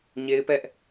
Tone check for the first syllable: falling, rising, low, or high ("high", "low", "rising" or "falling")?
high